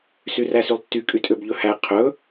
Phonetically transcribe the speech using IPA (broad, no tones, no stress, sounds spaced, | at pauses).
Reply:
s y r æ s y lˠ tː y kʼ y tʼ ø b ʎ ɵ h æ qʰ ɵ